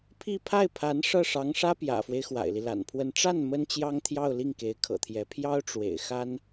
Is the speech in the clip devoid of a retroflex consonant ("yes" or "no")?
no